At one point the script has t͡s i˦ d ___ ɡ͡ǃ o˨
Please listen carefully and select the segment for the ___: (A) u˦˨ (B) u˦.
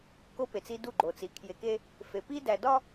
A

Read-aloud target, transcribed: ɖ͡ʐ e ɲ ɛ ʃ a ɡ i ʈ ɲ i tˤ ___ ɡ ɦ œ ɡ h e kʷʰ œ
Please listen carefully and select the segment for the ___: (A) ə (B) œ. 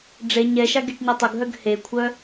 A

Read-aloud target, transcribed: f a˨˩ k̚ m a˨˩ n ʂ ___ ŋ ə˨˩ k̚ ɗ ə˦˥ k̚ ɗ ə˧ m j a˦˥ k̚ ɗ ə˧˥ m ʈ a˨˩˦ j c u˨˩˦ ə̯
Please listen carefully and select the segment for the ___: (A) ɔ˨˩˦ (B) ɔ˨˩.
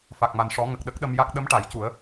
A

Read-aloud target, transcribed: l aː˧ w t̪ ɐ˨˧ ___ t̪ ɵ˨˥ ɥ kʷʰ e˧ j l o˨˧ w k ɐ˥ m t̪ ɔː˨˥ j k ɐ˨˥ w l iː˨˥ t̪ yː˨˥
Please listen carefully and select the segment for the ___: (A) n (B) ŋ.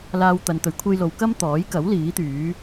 A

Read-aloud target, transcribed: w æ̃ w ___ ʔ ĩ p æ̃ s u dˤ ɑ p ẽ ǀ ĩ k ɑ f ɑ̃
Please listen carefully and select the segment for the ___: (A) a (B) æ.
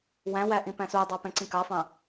B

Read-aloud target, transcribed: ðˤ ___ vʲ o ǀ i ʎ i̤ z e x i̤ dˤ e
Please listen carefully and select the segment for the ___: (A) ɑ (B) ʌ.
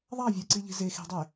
A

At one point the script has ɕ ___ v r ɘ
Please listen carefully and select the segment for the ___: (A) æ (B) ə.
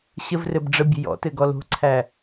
B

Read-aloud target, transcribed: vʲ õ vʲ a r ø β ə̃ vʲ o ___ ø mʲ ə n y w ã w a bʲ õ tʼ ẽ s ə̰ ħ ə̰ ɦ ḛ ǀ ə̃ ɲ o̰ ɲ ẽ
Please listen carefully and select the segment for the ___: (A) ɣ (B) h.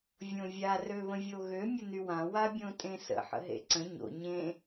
A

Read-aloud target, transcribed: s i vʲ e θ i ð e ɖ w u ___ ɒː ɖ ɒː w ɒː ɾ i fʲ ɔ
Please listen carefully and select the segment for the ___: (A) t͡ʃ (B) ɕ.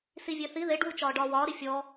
A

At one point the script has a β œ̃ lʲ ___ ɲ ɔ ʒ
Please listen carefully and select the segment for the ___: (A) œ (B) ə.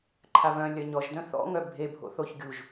A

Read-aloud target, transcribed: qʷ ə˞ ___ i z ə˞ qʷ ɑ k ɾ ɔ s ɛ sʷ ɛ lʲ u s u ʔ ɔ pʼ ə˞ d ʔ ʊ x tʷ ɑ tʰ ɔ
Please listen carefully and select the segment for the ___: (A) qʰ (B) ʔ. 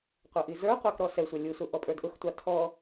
B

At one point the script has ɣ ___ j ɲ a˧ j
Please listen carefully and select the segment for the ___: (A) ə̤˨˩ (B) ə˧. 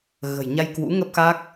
A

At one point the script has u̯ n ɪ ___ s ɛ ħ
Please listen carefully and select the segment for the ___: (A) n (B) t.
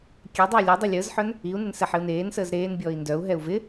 A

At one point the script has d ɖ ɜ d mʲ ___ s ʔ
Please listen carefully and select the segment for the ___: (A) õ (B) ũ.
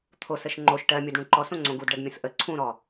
B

